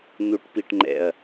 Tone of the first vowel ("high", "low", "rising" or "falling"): rising